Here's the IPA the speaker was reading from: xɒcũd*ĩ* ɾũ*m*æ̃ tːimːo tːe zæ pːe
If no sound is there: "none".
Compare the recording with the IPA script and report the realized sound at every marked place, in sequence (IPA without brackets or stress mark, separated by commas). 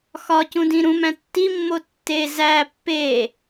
ĩ, m